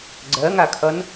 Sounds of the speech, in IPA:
ɡ͡ǀɜŋakʰʌn

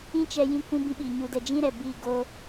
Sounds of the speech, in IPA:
ĩ˦t͡ʃɛ˧ jĩ˧kʷĩ˧bĩ˧ ɓi˨ ɲu˨dɛ˨ d͡ʒĩ˦ɾɛ˨ bi˦˨ɡo˦

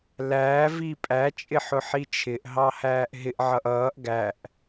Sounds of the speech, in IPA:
læː vipʼæ t͡ʃʼɪħʊħit͡ʃʰɪʔ ɦɑhæːʔɦɪʔ ʕʌʔʌːʔ ɡæʔ

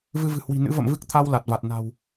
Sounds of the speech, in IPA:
vɨ˧vɨ̤˨˩hwi̤˨˩ nɨ̰˧˥və̰˧˨mvɨ˦˥k̚ t̪ʰa˧w la˨˩t̚va˨˩t̚ na̤˨˩w

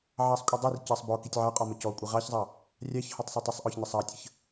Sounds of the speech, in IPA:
ʕɑsˤkʷʼədˤir cɑsˤbɔ kitʲʕɑqʼɔ məcɔkʷʼi ʁɑçzˤɑ | rʲɑçhɔtˤ sˤitˤisˤʔɔç nəsˤɑtʲəç

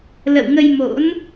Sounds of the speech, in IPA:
lə̰˧˨wŋə˧jmo̰˧˥n

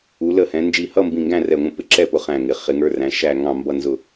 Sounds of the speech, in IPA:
u˨˥lə˥˨hɛ̃˨˥ nd͡ʒi˧˩hʌ˥˨mbĩ˧˩ ŋɡæ̃˥˨rɛ˧˩ŋʷə̃˧˩ pɪ˥˨ǁɛ˥˨pʊ˨˥ χæ̃˧˩ŋɪ˩˧ χɪ˨˥ŋə˞˧˥˧ræ̃˨˥ ʃæ˥˨ ŋɑ̃˥˨ mbʌ˥˨nzʊ˥˨

